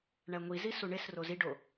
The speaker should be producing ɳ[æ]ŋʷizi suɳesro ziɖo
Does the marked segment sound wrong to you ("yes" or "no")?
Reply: no